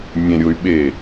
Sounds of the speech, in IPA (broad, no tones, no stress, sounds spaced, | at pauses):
mʲ ẽ ɾʲ o y̯ ɓ e